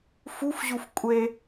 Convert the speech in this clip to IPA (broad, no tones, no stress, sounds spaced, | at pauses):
f u f ʑ u f kʷʼ e